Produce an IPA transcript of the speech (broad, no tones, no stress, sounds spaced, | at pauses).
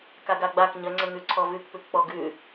k a ɡ a ɡ͡b a k ɲ ə ŋ͡ǀ ə ŋ ʉ ǀʰ ɔ v ʉ k p ʉ k k͡p ɔ ɡ ʉ